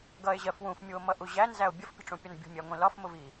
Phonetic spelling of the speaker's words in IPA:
ɡ ʌ e̯ ʑ ɜ f w ũ f mʲ u o̯ m ʌ ʔ u ʑ æ n z æ o̯ bʲ ə f pʲ ə̤ ʈ͡ʂ ũ pʲ ɒ n bʲ ṳ mʲ æ ŋʷ ĩ l ɒ f m ʊ v i

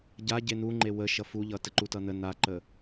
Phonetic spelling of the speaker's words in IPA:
ɟ a ɟ e n̪ u ŋ͡ǃ e w ə ʃ ʌ f u ʎ ʌ t ə ǃ u t ʌ n̪ ə n a ǃ ə

